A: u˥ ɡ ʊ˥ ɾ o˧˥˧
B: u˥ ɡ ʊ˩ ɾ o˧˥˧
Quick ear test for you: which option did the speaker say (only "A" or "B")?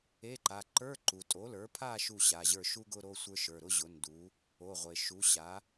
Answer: A